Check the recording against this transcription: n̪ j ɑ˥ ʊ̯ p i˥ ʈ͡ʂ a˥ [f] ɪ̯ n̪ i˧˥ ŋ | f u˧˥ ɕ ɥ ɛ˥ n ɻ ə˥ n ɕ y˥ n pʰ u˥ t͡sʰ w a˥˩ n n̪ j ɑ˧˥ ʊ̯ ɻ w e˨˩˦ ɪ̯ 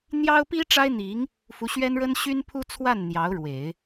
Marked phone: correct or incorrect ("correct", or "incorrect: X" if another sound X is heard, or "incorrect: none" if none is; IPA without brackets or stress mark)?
incorrect: none